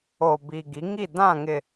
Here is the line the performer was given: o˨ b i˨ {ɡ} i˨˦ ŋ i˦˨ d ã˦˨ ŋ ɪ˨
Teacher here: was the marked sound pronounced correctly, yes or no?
yes